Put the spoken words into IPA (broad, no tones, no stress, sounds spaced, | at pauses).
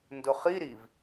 n d ʊ χ i ɾ i v